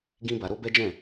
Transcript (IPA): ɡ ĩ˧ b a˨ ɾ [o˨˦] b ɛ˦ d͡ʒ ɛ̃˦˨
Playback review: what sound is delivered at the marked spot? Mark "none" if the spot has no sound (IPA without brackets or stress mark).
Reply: o˧